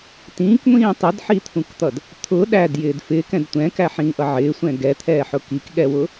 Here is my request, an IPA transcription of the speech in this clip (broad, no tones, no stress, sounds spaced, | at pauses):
t ĩː k ŋʷ ĩː tˤ ʊ d ħ i t̪ʰ ũ k t̪ ʌ d | t̪ʰ ʊ ɗ æ d j ɪː d f ɪː k ɛ̃ d tʷ ɛ̃ k æ ħ ĩː ʔ ʌ ʕ ɪː sʷ ɛ̃ ɡ ɛ t̪ʰ ɛː ħ ʊ k i k ɠ ɛ w ʊ